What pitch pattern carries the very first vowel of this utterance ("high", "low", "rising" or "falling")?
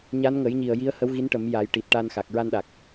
rising